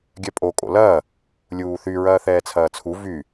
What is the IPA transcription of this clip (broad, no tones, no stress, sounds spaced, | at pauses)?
ɡʲ œ pʼ o kʼ o̰ l ɐː | lʲ uː θ y ɹ ɐː θ ɛː t͡sʰ ɐː t͡sʰ u v y